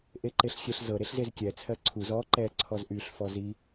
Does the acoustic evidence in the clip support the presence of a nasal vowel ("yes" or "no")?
no